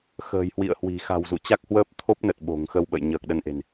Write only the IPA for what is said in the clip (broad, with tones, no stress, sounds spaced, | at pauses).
x ə̤ː˨˩ j h w ḭ˧˨ ə̯ h w i̤˨˩ x a̤˨˩ w z ṵ˧˨ t͡ɕ a˦˥ k̚ h w əː˦˥ p̚ t̪ʰ o˦˥ p̚ n ə˨˩ t̚ ɓ o̤˨˩ ŋ x ə˧ w ɓ ə̰˧˨ j ɲ əː˨˩ k̚ ɗ ə˧ n ʔ e̤˨˩ n